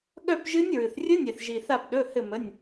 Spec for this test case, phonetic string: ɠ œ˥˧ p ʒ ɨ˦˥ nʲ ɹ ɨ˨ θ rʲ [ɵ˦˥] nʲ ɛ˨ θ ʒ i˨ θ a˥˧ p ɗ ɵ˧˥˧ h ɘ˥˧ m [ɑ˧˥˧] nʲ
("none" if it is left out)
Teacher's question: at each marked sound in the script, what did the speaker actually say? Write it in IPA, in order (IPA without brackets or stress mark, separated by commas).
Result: ɵ˦˥, ə˧˥˧